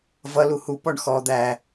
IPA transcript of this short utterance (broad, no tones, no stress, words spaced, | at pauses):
vʌ luhu pɔɳxɔ d̪æ